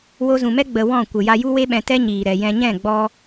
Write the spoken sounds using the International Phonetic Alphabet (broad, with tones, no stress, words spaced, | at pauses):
wo˧zũ˨mɛ˦ ɡ͡bə˧wɔ̃˦˨ kʷə˨ ja˧ju˦we˦ɓɛ̃˧ tɛ˦ɲiː˨ ɾɛ˨jɛ̃˧ɲɛ̃˦˨ ɡ͡bɔ˦